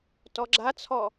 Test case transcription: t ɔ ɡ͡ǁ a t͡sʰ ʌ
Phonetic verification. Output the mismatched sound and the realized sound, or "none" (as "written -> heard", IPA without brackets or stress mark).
ʌ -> ɔ